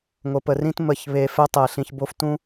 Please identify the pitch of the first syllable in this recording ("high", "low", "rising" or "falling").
low